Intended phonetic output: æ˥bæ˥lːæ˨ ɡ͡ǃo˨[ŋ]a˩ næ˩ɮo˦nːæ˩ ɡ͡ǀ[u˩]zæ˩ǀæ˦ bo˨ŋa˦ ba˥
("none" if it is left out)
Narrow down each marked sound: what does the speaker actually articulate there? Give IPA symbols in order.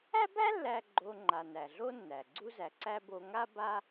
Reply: ŋ͡ǃ, u˦

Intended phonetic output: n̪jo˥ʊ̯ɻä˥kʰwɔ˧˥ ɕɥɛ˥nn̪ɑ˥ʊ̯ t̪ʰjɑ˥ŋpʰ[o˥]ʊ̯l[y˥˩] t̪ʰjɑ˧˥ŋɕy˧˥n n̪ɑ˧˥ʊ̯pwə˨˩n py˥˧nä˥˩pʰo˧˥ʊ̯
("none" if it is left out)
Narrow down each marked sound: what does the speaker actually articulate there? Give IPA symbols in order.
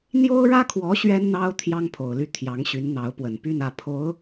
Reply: o˨˩, y˥˩

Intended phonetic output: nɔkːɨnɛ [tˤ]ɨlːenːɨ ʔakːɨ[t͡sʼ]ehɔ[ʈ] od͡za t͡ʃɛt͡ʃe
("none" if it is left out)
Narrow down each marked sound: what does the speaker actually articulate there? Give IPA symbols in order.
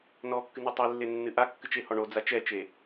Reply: tˤ, t͡ʃ, ɳ

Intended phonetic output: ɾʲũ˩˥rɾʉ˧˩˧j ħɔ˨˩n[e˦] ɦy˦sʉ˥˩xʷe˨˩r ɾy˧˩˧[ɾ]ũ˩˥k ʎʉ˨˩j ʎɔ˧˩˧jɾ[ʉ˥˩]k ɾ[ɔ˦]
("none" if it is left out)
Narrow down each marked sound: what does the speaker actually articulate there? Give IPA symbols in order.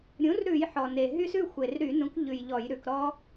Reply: e˨˩, n, ʉ˩˧, ɔ˦

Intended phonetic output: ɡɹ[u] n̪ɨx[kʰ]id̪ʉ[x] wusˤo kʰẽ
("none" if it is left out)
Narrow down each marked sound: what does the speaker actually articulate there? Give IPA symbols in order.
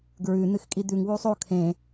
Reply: ʉ, kʼ, ŋ

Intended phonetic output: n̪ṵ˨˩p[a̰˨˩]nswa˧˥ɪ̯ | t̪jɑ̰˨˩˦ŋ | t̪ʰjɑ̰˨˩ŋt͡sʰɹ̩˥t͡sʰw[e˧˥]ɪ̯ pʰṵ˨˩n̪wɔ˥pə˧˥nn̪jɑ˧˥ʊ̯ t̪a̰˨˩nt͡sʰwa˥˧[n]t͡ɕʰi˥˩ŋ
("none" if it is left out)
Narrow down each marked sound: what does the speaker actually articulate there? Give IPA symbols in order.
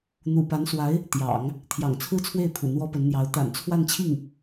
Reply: a˧˥, e˥˩, n

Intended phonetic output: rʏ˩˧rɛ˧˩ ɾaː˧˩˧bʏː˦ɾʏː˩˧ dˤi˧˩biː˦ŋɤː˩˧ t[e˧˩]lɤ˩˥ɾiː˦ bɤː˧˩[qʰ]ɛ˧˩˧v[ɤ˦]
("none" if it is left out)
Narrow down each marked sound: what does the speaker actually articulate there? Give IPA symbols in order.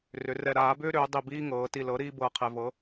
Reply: i˧˩, qʰ, ɤ˩˥

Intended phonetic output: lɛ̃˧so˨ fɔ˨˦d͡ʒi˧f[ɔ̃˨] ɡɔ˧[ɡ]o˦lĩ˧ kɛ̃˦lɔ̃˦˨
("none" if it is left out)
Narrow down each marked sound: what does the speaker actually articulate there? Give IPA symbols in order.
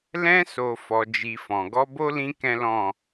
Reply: ɔ̃˨, b

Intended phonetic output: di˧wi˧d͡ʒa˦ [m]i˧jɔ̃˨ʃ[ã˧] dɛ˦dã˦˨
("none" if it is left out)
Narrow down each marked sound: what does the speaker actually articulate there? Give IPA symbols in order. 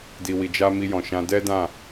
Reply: m, ã˧

